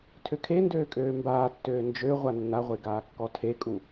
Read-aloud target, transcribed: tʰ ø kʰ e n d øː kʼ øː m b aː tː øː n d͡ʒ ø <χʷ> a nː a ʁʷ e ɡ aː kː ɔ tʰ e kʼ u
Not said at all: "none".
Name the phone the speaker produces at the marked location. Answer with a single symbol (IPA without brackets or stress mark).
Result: ʁʷ